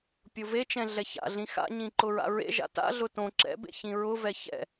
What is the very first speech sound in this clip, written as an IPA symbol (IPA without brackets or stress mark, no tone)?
pʲ